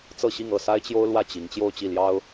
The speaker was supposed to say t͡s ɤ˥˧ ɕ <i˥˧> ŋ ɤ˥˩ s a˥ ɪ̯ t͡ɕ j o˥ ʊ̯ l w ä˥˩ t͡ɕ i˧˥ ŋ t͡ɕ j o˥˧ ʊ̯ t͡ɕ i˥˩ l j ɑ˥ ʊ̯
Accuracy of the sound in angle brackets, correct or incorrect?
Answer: correct